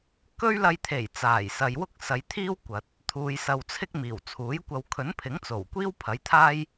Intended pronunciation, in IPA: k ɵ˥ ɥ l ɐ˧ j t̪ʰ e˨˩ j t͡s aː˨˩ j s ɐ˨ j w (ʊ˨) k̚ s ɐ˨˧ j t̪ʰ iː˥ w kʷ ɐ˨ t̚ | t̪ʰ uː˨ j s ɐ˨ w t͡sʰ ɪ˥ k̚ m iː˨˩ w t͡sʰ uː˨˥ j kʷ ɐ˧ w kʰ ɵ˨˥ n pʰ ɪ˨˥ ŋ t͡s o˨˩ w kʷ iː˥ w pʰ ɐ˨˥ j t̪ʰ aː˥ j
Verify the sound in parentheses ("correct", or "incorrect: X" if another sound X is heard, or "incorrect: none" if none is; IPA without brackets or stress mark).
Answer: incorrect: ʊ˥